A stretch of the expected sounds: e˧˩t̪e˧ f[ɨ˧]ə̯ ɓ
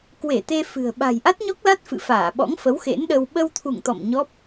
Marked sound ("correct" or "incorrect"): incorrect